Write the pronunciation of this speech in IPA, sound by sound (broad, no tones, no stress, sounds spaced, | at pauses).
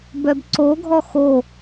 b œ b ǀ o ɡʱ ɔ x o